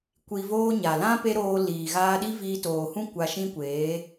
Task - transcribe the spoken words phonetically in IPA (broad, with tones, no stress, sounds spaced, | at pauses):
kʷ i˧ v oː˦ ɲ a˨ l ã˦ p e˦ ɾ oː˧ l iː˨ ɣ aː˧ ɗ i˦ v iː˧ t oː˨ h ũ˦ kʷ a˧ ʃ ĩ˦ kʷ eː˨˦